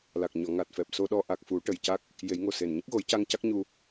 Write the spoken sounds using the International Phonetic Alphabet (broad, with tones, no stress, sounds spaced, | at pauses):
l a˨˩ k̚ ɲ ɔ˨˩˨ ŋ a˨˩ t̚ f ɛ˨˩ p̚ s o˧ ɗ ɔ˧ ʔ a˨˩ k̚ f u˨˩˦ ʈ ə˨˩ j c a˦˥ k̚ | j e˨˩˦ j ŋ o˨˩ s e˨˩ n ɲ ə˦˥ k̚ ɣ o˨˩˦ j c a˧ ŋ c a˦˥ k̚ ɲ u˧